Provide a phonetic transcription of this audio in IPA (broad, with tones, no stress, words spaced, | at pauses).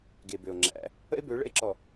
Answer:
ɡe˨bø˨o̯ ŋ͡ǁæ̰˨˦ | ə̰˦e̯bø˨˦ ɭə̰˦e̯ǁɔ˨